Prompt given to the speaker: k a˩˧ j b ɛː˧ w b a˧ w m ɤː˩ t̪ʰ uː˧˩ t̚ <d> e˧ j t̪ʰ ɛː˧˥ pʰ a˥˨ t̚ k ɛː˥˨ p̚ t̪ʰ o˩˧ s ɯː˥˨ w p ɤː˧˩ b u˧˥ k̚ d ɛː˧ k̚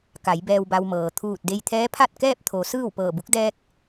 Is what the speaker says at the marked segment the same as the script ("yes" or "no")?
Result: yes